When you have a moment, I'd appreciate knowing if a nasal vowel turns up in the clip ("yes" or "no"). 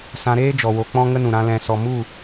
yes